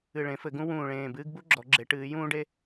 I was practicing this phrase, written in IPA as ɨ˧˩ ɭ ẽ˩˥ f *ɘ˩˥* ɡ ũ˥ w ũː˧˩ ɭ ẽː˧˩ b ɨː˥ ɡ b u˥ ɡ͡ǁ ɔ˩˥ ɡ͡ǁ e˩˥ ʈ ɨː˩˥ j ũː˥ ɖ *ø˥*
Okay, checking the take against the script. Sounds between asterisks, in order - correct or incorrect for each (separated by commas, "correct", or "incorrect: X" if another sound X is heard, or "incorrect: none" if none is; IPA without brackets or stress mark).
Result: correct, incorrect: e˥